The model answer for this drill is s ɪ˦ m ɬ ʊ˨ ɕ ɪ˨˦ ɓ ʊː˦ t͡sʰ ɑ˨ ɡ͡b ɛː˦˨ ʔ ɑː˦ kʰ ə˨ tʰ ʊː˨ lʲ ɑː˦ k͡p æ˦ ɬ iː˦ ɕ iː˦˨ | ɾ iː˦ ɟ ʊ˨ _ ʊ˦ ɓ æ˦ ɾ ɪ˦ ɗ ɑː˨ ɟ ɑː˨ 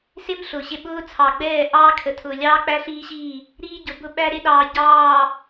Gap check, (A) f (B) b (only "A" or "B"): B